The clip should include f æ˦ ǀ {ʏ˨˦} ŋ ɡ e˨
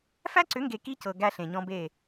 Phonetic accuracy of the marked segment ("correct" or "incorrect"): correct